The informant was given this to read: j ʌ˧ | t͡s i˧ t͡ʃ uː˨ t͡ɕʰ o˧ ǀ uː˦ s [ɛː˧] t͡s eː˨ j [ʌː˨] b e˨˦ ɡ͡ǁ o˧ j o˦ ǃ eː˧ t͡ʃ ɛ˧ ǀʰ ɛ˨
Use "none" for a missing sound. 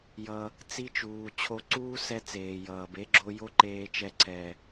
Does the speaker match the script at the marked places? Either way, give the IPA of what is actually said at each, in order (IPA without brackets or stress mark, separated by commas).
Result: ɛ˧, ʌː˨